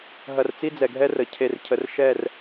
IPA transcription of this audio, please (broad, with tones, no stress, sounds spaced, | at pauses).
ɦ ɐ˨ r t͡s i˦ d͡z ɛ˨ ɡʱ ɛ˦ r ə˨ cʰ e˨ r cʰ ə˨ r ʃ ɛ˦˨ r